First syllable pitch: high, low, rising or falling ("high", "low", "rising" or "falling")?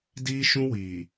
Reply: high